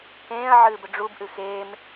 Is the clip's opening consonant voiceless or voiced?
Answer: voiceless